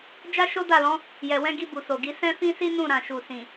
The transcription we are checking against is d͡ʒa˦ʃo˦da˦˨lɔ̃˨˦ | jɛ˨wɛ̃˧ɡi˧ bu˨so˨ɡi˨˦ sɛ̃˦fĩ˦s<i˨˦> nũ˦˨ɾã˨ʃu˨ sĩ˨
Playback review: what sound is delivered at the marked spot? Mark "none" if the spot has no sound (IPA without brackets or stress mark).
i˦